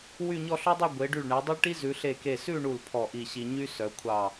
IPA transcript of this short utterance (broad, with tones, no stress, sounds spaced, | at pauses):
w y˥˧ ɲ ɔ˥˧ ɬ ɔ˥ dˤ o˥˧ ɡʷ e˩˧ ɖ y˧˩ ɭ ɳ ɛ˩˧ dˤ o˥ ɭ ʈ i˥ z ʉ˩˧ ɬ e˧˩ k e˧˩ s ʉ˥˧ ɳ u˧˩ l pʰ ɔ˧˩ ʔ i˧˩ ɕ i˧ ɲ y˥ s œ˩˧ kʷʰ ɑ˧˩